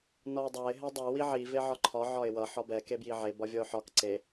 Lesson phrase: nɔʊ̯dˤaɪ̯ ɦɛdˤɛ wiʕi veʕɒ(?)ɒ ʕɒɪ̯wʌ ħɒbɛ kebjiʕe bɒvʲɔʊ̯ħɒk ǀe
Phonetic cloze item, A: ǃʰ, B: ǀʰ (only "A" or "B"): A